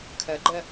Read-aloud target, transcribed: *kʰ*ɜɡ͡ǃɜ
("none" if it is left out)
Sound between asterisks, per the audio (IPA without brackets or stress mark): kʰ